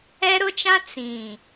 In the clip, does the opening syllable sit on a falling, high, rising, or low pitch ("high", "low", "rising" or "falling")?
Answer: high